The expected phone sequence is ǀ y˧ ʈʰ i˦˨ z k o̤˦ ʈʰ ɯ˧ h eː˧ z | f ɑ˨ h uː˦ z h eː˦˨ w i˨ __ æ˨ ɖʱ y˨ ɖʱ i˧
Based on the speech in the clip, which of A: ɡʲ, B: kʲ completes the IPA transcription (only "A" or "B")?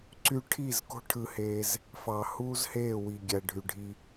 A